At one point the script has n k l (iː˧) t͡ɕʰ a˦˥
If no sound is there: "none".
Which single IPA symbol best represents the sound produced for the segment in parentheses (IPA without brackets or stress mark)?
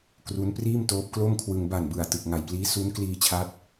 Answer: iː˧